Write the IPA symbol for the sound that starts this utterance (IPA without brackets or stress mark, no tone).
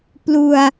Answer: p